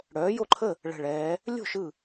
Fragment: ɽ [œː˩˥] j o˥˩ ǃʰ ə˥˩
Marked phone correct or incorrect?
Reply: correct